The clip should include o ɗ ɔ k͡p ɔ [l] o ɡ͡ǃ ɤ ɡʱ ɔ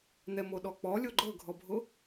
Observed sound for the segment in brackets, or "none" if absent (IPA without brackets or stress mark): lʲ